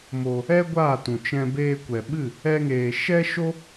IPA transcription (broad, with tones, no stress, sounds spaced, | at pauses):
m o˧ | ɛ˦ ɡʷ aː˦˨ t ũ˨ t͡ʃ ɛ̃˧ b eː˧ kʷ ɛ˨ ɓ ɨ˦˨ | ɛ˦ ŋ eː˧ ʃ ɛ˦ ʃ o˦